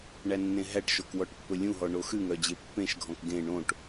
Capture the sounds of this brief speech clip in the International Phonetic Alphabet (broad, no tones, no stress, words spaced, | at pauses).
ɳænːẽɦæʈʃok wɔʈpːɵlʲũɦɔ ɳoxʉŋœ d͡ʑepːẽʃɡʱɔ̃k ɡẽ ɳõʈ